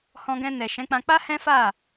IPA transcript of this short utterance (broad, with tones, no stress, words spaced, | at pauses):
hɔ̃˧ɡɛ̃˧nɛ˨ ʃɛ̃˨˦k͡pã˧ k͡pa˦ hɛ̃˦fa˦˨